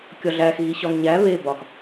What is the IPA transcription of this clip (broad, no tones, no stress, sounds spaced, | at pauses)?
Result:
kʲ ɒ ɮ æ x ɣ i ɕ ɒ ŋ ɲ æ β e b ɒ x